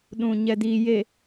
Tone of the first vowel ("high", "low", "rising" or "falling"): low